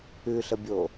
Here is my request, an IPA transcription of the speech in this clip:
ʉ ɬ ə bʲ o

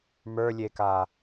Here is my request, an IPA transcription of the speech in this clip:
m ə˞ lʲ e k a

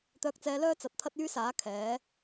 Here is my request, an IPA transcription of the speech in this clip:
t̪ œː˧ k̚ t͡s ɛː˧ l œː˥ t͡s ɐ˨ t̚ t̪ʰ ɐ˥ t̚ yː˥ s aː˨˥ kʰ ɛː˨˥

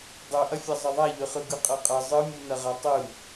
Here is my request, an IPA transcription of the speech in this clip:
dˤ ø ʔ ɐ fʲ ɐ zˤ ɐ ðˤ a ʎ ø χ ɯ ɡ ɯ qʼ ɤ qʼ ɐ zˤ ɯ mʲ u n ɐ ʁ a tˤ ɯ

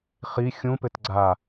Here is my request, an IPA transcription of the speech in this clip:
χ i xʲ ũ p ɘ t ɡ͡ǀ a

